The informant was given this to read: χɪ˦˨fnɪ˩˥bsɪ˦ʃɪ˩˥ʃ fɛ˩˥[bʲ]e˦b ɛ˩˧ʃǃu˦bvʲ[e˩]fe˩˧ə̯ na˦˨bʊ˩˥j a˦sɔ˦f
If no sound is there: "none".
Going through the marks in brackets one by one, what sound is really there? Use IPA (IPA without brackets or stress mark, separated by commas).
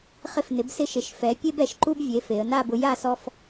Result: pʲ, e˩˥